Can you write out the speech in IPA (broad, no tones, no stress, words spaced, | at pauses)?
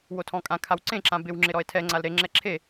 wotʰɔ̃kʼã kʰawǀẽ ǁãbɪw ŋ͡ǁɪɾɔe̯tʰɛ ŋ͡ǀalɾe ŋ͡ǁɛǁʰe